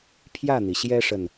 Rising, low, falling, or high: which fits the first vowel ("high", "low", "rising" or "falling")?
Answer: falling